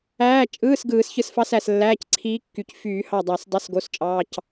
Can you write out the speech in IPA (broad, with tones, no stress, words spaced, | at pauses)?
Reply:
æː˧˥˧t͡ʃʼɯː˧˥˧s ɡɯː˨˩˦sçɯ˧˩sfɑ˧˥sæ˧˩s lːæː˧˥˧cǀʰiː˧˥kːy˨˩˦c fyː˨˩˦hɑ˧˩dˤæ˨˩˦s dˤɯ˧˥˧sɡo˧˥˧st͡ʃʼɑː˧˥˧c